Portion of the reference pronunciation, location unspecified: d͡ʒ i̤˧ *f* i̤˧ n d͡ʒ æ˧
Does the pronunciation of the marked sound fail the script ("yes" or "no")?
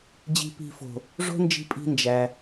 yes